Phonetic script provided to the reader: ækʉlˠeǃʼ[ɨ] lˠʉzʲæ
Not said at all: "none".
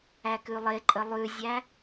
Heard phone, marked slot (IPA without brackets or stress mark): ə